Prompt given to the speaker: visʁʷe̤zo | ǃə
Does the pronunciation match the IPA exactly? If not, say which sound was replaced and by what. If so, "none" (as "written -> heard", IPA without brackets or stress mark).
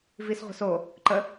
z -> s